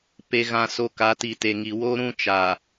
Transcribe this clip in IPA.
p e˨ ɣ ã˨ s o˨ k a˨˦ t i˨ t e˨ ŋ i˨ w o˦ ɾ ũ˦ t͡ʃ a˨

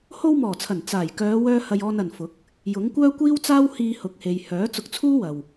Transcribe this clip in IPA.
h o˧ w m ɔː˨˩ t͡sʰ ɐ˨˩ n t͡s aː˨˩ j k œː˨˧ w œː˧ h ɐ˧ j ɔː˧ n ɐ˨ n f ʊ˨˥ k̚ | j ʊ˨˥ ŋ kʷ œː˥ kʷ iː˥ w t͡s aː˥ w h iː˨ h ʊ˨ k̚ h e˨ j h œː˨˥ t͡s ʊ˧ k̚ t͡sʰ uː˥ w ɐ˨ w

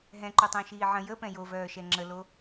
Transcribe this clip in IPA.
ɦ ɛ̃ ǃ o tˤ ə̃ː ʃ iː ʕ ə̃ j ə p ɛ̃ j o v œː ʃ ɛ ŋ͡ǁ ə l o

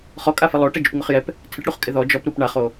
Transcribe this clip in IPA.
χ ɔ kʼ a f ɪ lˠ o ʈ ɛ d͡ʒ u p ŋ ʊ χ j ɛ p | tʰ ɪ ʈ ɽ u χ kʼ ɪ ð ɔ d͡ʒ ɔ p ɾ u p ɳ a χ o

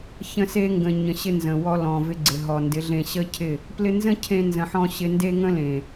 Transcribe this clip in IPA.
ç ə̃˧ s e˧ ŋ ɡ ə̃˨ ɲ ə̃˨ ɕ ɪ˧ n z ə̃˨ w ɔ˧ l ɔ̃˨ v ɪ˧ ɡ͡ǀ ɪ˨ ɦ ɔ˨ n d ɪ˨˦ ɮ ẽ˧ ɕ ə˦ cʰ ɪ˦˨ | p l ɪ˧ n z ə̃˦ cʰ ẽ˧ n z ə̃˨ ħ ɔ̃˧ ɕ ɪ˧ n d e˦ ŋ ə̃˦ l ẽ˨

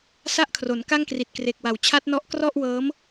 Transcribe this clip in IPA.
s a˥˩ ʔ kʰ r o˩˦ n k a˥˩ ŋ k r i˨˩ t̚ k r e˨˩ k̚ w a˨˩ w t͡ɕʰ a˦˥ t̚ n ɔ˦˥ ʔ k r ɔ˥˩ ʔ w ɤː˦˥ m

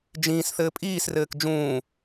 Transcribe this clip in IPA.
d͡ʒ ĩː s θ ɘː pʼ iː s r ɘː k d͡ʒ ũː

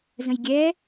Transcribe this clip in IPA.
z ə̃ j ɡʲ ɛ

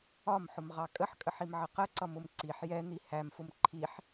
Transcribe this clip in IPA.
ɒ m ħ ʊ m ʁ ɑ kʼ ə ħ kʼ ə ħ i m ʕ ə q ə ǀ ʌ m ʊ m ǀ i ħ j ɛ n̪ i h æ m f ʊ m ǃʰ i ħ

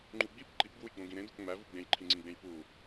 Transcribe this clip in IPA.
ŋ͡ǃ u ɡ͡b i p ǃ i p ɡ w u j ɡ͡b õ ɡ ĩ ɾ ẽ d o p ŋ͡m æ v u ɡ͡b ẽ j ǃʰ ĩ ŋ͡ǀ ĩ ɡ͡b ẽ j p u

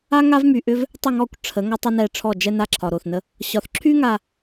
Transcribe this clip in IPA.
a˦ ŋ a˦ v m y˨ ʔ ʏ˦ v | tˤ ə˦˨ ŋ ɔ˦˨ kʷ ʈ͡ʂʰ ə˨˦ ŋ ɒ˦ tˤ ə˦ n ɛ˦˨ ʈ͡ʂʰ ɔ˦˨ d͡ʒ ɛ˦ n a˦ ǁʰ ɒ˨ ɾ o˨ θ n ə˦ | ɕ ɒ˨ θ ǁʰ y˦ ŋ a˨

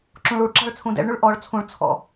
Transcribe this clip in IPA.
ǁ ũ ɭ u ɭ ǁ ɑ̤ ɭ t͡sʰ ũ d ɛ̰ ɭ ɳ ʉ ɭ ʔ ɔ ɭ t͡sʰ ũ ɭ t͡sʰ ɔ̰

